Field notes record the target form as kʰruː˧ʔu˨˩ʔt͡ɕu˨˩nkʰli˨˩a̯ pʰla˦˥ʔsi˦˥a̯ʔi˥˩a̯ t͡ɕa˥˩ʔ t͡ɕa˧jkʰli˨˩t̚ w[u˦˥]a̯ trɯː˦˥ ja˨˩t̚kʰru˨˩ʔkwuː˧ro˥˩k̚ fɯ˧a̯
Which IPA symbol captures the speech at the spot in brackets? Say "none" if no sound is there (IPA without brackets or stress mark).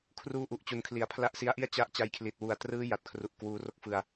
u˨˩